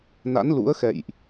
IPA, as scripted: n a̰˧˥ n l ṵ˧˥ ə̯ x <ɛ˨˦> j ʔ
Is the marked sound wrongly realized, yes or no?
yes